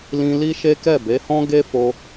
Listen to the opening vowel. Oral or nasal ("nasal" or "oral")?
nasal